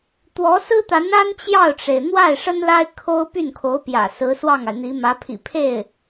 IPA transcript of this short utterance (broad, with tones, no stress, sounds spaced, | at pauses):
t̪ w ɔ˧˥ s ɹ̩˥ t̪ a˧˥ n a˥ n t͡ɕ j ɑ˥˩ ʊ̯ ʈ͡ʂ e˩ ɪ̯ n̪ w a˥˩ ɪ̯ ʂ ə˥ n l a˥ ɪ̯ kʰ o˥ ʊ̯ p y˥˩ n kʰ o˧˥ ʊ̯ p j ä̰˨˩ s ɹ̩˧˥ s w ɑ˥˩ ŋ a˩ ɪ̯ n̪ i˧˥ m ä˧˥ pʰ ḭ˨˩ pʰ e˥˩ ɪ̯